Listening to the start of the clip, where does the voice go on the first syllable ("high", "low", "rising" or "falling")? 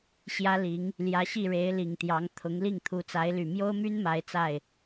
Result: high